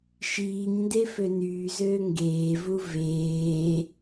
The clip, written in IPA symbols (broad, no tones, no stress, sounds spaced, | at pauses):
ʃ iː ɲ n d e f ø n yː z øː ŋ ɡ eː v u v eː